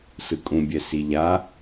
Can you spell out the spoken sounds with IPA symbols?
s ɯ kʼ ũ bʲ ɛ s i ʎ a

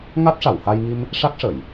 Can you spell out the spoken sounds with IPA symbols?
ŋ a˦˥ t̚ ʂ a˨˩˨ w h a˧ j ŋ i˧ m | ʂ a˦˥ k̚ ʂ ə˨˩˨ j

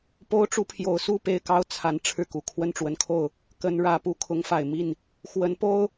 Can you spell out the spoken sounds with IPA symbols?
p o˥ ʊ̯ ʈ͡ʂ u˥ pʰ j o˧˥ ʊ̯ s u˥˧ p e˥˩ ɪ̯ k ɑ˥ ʊ̯ t͡sʰ a˧˥ n ʈ͡ʂʰ ɻ̩˥˩ k u˨˩ kʰ w ə˥˩ n ʈ͡ʂ w ə˧˥ n kʰ o˥˩ ʊ̯ | k ə˧˥ n ɻ ä˧˥ p u˧˥ kʰ ʊ˧˥ ŋ f a˨˩ ɪ̯ m i˥˩ n | x w ə˧˥ n p o˥ ʊ̯

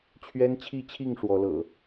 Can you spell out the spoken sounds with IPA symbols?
t͡ɕʰ ɥ ɛ˦ n t͡ɕʰ i˥˨ t͡ɕʰ i˥˨ ŋ ʂ w ɔ˨˦ l ɤ̰˨˩

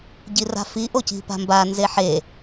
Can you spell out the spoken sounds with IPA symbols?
ɟ i r a̤ f i ʔ o c i̤ p a̤ m b a n z e ħ e

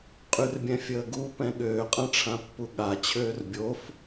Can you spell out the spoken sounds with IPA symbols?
qʼ y r bʲ ɛ̃ fʲ əː ɡ u p ɛ̃ ɠ øː qʼ ã ʈ͡ʂʰ ã pː u ɠ a t͡ɕʰ øː r bʲ o f

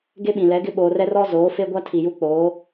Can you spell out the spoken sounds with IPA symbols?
ɡ e˦ ɓ ĩ˨ l ɛ˨˦ ɡ ɪ˦ ɓ oː˨ r ɛ˦ r ɔ˦ z oː˨˦ f e˦ ɡʷ a˦ tʰ i˨ j u˦ k͡p oː˨˦

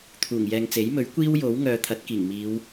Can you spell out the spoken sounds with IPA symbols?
t̪ʰ uː˨˩ ŋ j ɛː˨ ŋ t͡s e˨˥ j m ɵ˨˥ ɥ kʷ iː˥ w j o˨˥ w ŋ œː˨˧ t̪ʰ ɐ˨˥ t̚ k iː˨˩ ŋ m iː˨˧ w

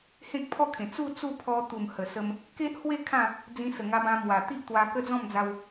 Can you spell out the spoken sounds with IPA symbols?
h ẽ˦ k̚ pʰ ɔ˥˧ kʰ ẽ˨˩ t͡s u˥˧ t͡s u˥˧ pʰ ɔ˧ t̪ u˨˩ m h ə˨˩ s ə˧ m | k e˦ ʔ h w e˥˧ kʰ ã˥˧ | d͡z ĩ˧ s ə˨˩ ŋ a˧ b ã˧ m w a˨˩ t̪ i˦ ʔ t̪ w a˧ k ə˦ d͡z ɔ̃˥˧ m d͡z a˧ w

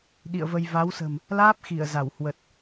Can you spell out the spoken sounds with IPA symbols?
ɗ ḭ˧˨ ə̯ v ə˧ j v a˨˦ w s ə̤˨˩ m | l aː˦˥ p̚ x i˧˩ ə̯ z a˧˩ w h w ə˨˩ t̚

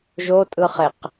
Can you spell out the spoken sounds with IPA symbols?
ʒ o tʼ ɯ χ e q

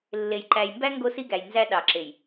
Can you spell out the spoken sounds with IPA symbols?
lː e˨ j ǃ æ˨ j m b æ˦ ŋ ɡ o˦ s i˦ ɡ æ˨ j n z æ˦ ɗ ɑ˨ ǁ e˨ j

